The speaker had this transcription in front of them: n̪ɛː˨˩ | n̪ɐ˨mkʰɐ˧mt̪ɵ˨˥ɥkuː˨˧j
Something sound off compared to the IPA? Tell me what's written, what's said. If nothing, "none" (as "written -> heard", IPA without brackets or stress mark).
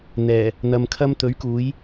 none